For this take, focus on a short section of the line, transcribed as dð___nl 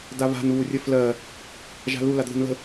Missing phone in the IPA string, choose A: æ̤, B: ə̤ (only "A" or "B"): B